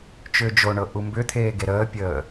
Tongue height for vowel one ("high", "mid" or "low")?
high